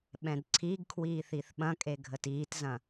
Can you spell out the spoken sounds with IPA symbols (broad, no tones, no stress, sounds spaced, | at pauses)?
ɓ ɛ̃ d ǀʰ i ɡ kʰ w iː θ i θ ɓ ɐ̃ kʼ e ɡʱ ə t iː t z ɐ̃